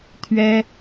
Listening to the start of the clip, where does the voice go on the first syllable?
high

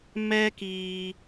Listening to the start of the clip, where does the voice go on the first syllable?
high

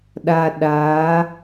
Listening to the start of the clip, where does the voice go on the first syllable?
low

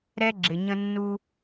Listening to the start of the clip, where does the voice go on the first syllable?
high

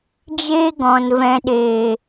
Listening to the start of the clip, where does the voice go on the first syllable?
high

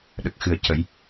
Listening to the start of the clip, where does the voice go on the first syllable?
low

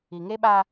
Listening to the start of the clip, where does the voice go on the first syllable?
low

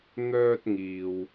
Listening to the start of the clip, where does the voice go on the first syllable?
high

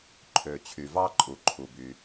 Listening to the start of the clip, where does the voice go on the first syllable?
low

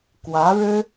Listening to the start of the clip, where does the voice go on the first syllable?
rising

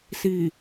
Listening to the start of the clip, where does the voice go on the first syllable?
low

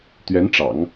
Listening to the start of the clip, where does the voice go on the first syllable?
rising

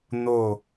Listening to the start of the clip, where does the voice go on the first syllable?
falling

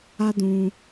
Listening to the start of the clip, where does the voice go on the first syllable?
high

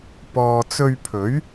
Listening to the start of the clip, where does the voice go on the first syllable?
low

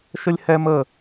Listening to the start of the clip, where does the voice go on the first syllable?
high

